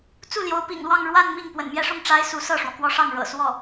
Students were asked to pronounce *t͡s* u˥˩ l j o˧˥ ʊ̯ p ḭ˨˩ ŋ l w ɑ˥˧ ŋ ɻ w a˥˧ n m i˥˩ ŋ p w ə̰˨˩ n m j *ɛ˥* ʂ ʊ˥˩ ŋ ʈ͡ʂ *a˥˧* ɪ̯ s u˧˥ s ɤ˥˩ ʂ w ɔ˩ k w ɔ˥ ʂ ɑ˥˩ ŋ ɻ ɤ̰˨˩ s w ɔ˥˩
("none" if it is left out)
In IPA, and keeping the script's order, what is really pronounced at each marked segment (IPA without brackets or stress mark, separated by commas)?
t͡s, ɛ˥, a˥